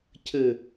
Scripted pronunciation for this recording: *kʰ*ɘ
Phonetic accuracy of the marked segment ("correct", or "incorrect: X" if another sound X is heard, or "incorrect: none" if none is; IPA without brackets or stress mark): incorrect: cʰ